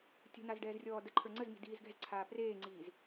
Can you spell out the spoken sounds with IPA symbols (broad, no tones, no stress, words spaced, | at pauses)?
tʲə̤naz ɖɛːzrʲɔːdəǃʰə˞ ŋ͡ǀəzmi̤ diːzɡɛ̤zǀʰaː preːŋ͡ǀiːz